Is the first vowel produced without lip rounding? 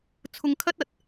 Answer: no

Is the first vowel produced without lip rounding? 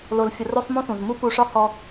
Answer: no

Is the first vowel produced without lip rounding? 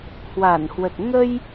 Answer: yes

